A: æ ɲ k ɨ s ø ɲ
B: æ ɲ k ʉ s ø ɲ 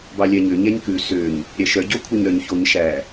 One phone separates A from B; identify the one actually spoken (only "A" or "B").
B